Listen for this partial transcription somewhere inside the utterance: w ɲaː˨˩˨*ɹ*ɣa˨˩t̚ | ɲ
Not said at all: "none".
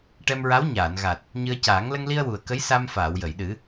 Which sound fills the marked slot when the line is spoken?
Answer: n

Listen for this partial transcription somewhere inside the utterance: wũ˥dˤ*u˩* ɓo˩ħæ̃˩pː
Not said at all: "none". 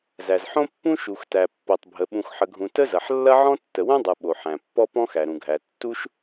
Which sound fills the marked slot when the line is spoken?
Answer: ɯ˩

